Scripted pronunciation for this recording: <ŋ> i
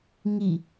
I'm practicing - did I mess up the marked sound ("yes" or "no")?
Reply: no